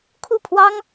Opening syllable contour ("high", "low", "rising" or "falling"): falling